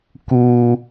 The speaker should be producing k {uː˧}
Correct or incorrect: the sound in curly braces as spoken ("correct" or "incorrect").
correct